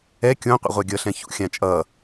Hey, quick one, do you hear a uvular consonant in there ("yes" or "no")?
yes